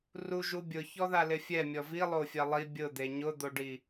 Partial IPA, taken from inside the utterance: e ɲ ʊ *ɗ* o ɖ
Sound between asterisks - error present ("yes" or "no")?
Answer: yes